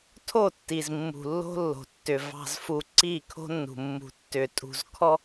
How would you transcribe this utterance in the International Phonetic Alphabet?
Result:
tʰ o˦˨ tː i˨ z mː ṳ˨ lː o̤˦ lː o̤˨ tː ʏ˨ v ɑ̤˨ z f u˨ ǀ i˦˨ kʰ o̤˦ nː ṳ˨ mː ṳ˨ tː ʏ˨ tʼ ṳ˨ z kʰ ɔ˦

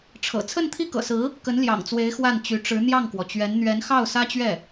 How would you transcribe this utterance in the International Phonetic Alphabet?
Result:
ʈ͡ʂʰ ɤ̰˨˩ t͡sʰ ə˥˧ n t̪ʰ i˥˩ k ɤ̰˨˩ s ɹ̩˧˥ | k ə˧˥ n l j ɑ̰˨˩ ŋ t͡s w e˧˥ ɪ̯ x w a˥˩ n t͡ɕ y˧˥ ʈ͡ʂ ɻ̩˧˥ n̪ j ɑ˥˩ ŋ k w ɔ˩ t͡ɕ ɥ ɛ˧˥ n n̪ ɥ ɛ˧˥ n x ɑ˥˩ ʊ̯ s ä˥ t͡ɕ ɥ ɛ˥˩

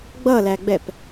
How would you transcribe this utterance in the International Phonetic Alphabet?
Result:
ɡ͡b ʌ l æ ɡ͡b ɛ p

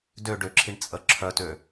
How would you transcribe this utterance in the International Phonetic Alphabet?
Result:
d ø ɖ ø ǁʰ i ɳ t͡sʼ ə ǁʰ œ t ø

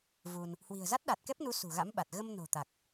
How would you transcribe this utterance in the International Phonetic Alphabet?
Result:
v u˧ n | h w i̤˨˩ ə̯ z a˦˥ t̚ ɗ a˨˩ t̚ k ɛ˦˥ p̚ n u˨˦ s ṳ˨˩ ɣ a̰˧˥ m ɓ a˨˩ t̚ ɣ ə˧ m n o̤˨˩ t̪ a˨˩ k̚

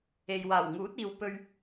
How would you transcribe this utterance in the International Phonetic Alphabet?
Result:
e˨ j w aː˨˩ w ŋ uː˨˥ t̚ iː˨ w p ɵ˧ ɥ

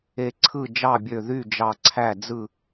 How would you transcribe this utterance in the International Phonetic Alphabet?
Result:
e˧˩ ǀʰ ɯ˥˨ d͡ʒ ɑ˥˨ bʲ ø˧˩ ð y˥˨ d͡ʒ ɑ˧˩ ǀʰ æ˥˨ d͡z ɯ˥˨

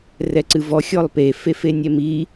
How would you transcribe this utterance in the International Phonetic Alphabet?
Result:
r ɛ ǀ ɨ v ɔ xʲ ɔ lˠ p e f e f e nʲ ɛ m i

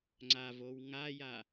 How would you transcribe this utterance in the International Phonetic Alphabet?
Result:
ŋ͡ǀ a v o w ŋ a j a

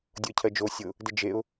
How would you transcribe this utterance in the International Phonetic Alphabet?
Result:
dʲ ʊ ə̯ cʰ ɜ d͡ʒ o sʲ ʊ | d ɘ d͡ʒ e ʊ̯

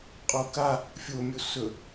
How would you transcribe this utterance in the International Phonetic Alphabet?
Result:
qʼ o k a | fʲ o mʲ o s ɵ

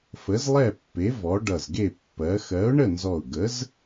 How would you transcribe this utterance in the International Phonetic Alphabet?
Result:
f ə˨˥ z lˠ ɛ˥˨ pː e˨˥ v ɔ˨˥ ɖ ʌ˧˩ z ɡ e˥˨ pː ɜ˨˥ x ɜ˨˥ ʊ̯ ɳ ə˥˨ n z ɔ˧˩ ʊ̯ ɡ ə˨˥ z

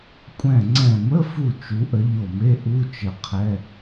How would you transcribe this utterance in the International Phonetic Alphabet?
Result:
kʷʼ ɛ̃˧˩ ŋ͡ǀ ɛ̃˧˩ m ə˧˥˧ f u˧˩ t͡ʃ u˨˥ ʔ ə˨˥ ʎ o˧˩ m e˧˥˧ ʔ u˧˥˧ t͡ʃ ə˧˩ qʰ ɛ˧˥˧

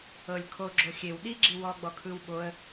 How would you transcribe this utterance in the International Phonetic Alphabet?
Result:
ɤ lʲ kʰ o ɡ͡ǁ o xʲ e w ɗ i ɡ͡ǁ i w ɔ ɡ͡b ɔ kʰ ɯ w ɓ o ə̯

